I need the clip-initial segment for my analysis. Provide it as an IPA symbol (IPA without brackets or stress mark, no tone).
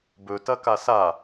b